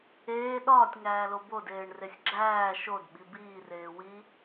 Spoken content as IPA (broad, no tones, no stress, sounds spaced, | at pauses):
eː ɗ ɒː tʲ ŋ æː l o b o d eː ɳ r e sʲ ɡ͡ǁ æː ʃ o d ɓ i b iː r eː w i